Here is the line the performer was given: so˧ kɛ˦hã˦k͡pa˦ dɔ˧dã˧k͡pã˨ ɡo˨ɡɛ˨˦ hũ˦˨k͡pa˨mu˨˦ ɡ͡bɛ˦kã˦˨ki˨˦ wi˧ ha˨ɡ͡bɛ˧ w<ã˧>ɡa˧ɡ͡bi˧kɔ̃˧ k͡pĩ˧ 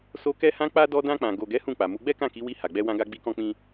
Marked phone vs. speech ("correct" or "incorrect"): correct